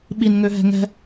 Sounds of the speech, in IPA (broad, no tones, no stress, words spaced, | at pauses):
ɓinŋøɦɛ̤ ŋɛ̤